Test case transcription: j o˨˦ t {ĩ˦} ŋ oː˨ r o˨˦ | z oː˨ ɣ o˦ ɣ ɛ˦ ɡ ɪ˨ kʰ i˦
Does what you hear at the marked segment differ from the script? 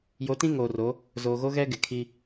no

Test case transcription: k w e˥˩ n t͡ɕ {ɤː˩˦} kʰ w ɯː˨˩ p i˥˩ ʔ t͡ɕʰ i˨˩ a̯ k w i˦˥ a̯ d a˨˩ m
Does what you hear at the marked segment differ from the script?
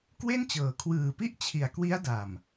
no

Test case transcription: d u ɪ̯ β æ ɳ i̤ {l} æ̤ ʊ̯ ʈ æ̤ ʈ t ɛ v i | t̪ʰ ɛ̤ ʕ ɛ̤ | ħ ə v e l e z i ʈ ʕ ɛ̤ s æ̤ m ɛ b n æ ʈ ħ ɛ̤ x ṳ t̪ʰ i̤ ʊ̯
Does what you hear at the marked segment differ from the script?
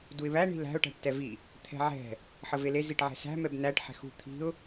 no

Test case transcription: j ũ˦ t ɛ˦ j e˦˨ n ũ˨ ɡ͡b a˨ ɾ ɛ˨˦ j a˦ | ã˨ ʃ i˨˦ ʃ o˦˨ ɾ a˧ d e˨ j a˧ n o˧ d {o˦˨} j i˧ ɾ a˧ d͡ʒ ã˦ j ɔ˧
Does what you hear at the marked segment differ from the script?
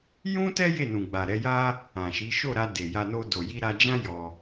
yes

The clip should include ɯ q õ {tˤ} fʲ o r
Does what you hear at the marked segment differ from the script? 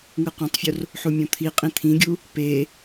no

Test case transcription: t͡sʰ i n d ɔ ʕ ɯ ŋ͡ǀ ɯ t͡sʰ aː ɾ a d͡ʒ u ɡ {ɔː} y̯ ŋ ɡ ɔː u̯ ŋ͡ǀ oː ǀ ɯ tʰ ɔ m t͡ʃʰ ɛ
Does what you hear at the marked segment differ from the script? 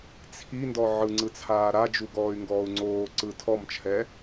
no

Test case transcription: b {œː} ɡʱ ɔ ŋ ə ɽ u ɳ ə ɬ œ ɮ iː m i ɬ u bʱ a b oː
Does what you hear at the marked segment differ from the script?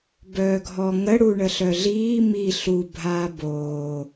no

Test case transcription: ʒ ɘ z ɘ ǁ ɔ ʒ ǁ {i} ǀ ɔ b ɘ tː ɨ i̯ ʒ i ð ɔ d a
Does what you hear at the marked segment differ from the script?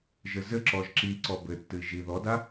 no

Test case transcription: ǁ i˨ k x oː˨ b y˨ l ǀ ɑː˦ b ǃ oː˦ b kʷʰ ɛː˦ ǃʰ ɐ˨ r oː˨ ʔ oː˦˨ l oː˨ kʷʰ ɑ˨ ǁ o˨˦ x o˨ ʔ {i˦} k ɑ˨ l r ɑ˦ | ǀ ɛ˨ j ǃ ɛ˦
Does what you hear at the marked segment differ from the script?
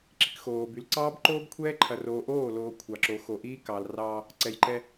yes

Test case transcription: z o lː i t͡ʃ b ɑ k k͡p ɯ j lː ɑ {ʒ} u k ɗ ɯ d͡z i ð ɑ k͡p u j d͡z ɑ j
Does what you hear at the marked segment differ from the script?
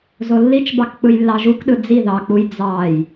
no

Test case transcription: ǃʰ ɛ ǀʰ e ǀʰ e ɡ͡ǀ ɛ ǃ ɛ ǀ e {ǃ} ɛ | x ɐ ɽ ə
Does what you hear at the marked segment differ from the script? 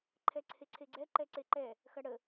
no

